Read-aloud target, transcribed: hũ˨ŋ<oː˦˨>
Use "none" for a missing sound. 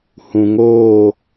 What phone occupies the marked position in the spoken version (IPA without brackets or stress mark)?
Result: oː˦˨